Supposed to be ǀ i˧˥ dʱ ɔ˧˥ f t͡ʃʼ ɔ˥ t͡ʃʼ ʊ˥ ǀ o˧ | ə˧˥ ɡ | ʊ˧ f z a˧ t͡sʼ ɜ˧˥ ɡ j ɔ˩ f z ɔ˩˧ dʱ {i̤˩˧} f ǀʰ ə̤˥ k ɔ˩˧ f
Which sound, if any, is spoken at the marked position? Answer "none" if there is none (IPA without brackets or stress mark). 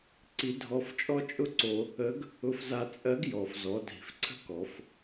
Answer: i̤˩˧